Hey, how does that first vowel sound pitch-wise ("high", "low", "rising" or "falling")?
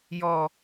high